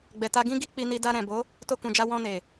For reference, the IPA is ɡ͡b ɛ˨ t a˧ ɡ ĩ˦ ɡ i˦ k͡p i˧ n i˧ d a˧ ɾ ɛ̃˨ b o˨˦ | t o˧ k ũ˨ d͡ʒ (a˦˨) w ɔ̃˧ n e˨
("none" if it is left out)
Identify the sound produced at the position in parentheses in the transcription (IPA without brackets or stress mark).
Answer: a˧